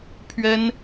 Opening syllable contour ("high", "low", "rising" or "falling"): high